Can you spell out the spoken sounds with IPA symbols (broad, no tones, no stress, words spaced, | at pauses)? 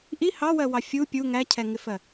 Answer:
ʔi hɑwɜwɑ fʲu pʲu ŋæcʰɛŋɪfɜ